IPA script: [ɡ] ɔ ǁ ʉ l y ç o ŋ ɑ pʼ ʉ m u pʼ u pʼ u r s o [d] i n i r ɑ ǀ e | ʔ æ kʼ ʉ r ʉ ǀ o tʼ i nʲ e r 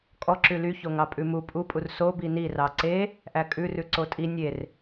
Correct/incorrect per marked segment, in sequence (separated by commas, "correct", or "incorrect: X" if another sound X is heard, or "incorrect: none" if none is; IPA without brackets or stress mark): incorrect: kʼ, incorrect: b